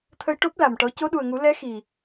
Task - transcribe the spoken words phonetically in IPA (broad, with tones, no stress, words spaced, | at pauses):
t̪ʰə˧jʈo˦˥p̚ la˨˩mʈɔ˧˥ co˧˥ɗu˨˩ə̯ŋu˨˩˦ lɛ˧˥ xi˨˩